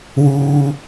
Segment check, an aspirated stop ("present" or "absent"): absent